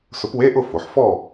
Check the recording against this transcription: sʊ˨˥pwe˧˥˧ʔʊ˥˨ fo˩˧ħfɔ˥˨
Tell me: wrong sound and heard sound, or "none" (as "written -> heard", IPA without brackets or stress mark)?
none